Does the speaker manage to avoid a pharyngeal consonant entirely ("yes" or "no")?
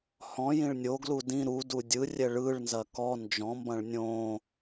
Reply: yes